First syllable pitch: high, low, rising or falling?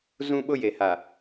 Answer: high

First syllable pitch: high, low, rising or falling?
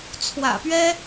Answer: low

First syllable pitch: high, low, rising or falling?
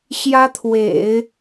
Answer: high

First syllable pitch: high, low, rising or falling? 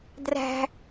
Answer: high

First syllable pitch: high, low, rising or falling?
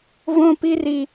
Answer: high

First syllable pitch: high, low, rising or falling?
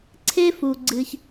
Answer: high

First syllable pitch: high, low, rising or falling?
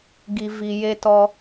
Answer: low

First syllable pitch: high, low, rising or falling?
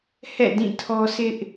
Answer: falling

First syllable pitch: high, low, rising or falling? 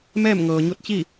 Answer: falling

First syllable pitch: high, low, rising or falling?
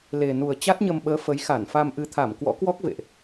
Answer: low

